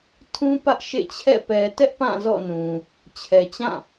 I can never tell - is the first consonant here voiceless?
yes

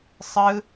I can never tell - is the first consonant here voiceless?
yes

